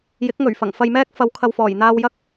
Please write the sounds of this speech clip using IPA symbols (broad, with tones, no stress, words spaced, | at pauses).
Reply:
jɪ˨˥k̚ ŋɵ˨˩ɥfɐ˨˩ŋ fɐ˧jmɛː˥k̚ fɐ˨˥wkʰɐ˨wfɔː˨˩jn̪aː˧w jɐ˥k̚